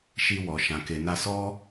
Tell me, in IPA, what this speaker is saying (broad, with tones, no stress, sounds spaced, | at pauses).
ʃ i˧ w ɔ˨ ʃ ã˨ k e˨ n a˧ s ɔ˦